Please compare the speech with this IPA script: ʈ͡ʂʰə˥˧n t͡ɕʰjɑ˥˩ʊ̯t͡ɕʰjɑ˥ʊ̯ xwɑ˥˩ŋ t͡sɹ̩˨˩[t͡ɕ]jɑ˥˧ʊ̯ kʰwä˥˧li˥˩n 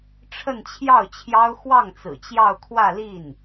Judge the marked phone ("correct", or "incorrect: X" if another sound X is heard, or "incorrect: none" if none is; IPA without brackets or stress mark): correct